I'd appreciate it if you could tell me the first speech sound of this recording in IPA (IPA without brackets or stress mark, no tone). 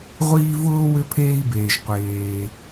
ʁʷ